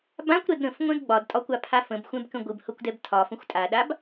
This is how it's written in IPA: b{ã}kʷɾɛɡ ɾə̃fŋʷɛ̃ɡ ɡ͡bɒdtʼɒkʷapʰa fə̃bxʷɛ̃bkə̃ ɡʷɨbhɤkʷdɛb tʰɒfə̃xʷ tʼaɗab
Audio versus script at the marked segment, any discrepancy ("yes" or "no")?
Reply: no